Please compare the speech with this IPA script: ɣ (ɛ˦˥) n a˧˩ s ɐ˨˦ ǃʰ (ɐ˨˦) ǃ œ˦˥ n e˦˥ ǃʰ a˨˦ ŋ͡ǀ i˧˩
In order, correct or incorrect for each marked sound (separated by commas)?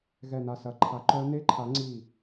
incorrect, incorrect